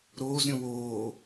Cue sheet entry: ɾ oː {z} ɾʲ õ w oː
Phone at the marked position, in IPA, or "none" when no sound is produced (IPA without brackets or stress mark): z